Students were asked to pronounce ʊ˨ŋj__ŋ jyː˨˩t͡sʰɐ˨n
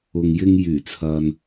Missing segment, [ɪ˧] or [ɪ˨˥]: ɪ˧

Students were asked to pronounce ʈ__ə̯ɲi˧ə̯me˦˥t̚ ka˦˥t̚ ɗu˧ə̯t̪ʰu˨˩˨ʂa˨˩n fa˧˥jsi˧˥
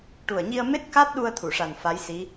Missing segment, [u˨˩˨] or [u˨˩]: u˨˩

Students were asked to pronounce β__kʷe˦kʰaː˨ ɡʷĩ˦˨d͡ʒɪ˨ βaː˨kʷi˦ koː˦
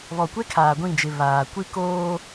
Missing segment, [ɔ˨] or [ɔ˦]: ɔ˨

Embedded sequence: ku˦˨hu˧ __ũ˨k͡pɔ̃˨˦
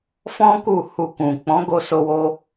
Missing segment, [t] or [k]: k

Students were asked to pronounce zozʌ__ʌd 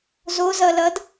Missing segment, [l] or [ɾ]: l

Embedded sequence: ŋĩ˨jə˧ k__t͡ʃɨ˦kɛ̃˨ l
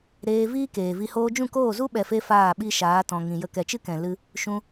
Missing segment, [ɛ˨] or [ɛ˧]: ɛ˨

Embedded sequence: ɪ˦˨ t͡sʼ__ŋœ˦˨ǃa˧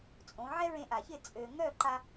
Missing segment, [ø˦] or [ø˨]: ø˨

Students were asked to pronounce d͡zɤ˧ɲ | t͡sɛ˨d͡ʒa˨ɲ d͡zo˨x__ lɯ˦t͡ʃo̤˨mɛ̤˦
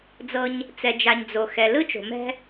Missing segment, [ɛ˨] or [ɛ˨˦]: ɛ˨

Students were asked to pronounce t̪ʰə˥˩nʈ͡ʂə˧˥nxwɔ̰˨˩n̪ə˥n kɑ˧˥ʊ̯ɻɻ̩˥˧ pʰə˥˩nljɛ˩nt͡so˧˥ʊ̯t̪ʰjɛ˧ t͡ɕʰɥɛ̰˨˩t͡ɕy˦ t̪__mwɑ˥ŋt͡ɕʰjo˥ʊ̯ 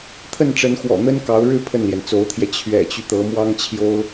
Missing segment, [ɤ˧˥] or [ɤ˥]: ɤ˧˥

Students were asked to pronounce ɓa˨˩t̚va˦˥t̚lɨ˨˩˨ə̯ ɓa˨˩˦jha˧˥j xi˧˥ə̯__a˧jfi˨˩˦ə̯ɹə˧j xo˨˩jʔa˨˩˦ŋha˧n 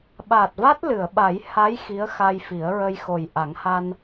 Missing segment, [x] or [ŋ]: x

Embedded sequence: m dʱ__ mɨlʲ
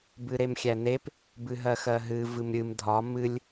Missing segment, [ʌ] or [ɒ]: ɒ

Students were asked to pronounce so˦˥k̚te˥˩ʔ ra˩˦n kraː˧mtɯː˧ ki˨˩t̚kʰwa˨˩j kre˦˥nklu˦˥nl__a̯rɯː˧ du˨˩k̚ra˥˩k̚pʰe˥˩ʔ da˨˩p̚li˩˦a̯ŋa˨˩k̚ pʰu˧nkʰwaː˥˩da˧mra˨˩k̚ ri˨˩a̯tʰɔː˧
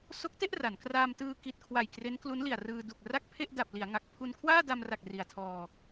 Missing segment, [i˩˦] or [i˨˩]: i˨˩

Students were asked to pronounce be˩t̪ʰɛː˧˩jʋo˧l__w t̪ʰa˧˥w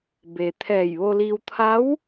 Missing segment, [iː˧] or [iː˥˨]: iː˧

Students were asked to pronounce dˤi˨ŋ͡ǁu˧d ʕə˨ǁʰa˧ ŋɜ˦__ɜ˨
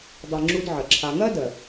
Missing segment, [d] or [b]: d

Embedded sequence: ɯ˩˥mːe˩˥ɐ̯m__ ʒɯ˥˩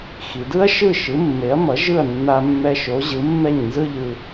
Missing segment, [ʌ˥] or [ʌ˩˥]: ʌ˩˥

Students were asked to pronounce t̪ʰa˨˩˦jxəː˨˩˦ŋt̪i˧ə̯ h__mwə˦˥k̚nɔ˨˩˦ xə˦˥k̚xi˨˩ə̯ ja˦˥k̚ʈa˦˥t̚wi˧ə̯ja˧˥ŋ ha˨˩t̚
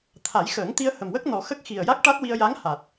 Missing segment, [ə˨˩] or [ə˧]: ə˨˩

